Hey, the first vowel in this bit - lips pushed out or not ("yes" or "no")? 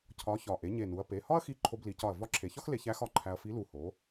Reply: yes